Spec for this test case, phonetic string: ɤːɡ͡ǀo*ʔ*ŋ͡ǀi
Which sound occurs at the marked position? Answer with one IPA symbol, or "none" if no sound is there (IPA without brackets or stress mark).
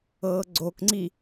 k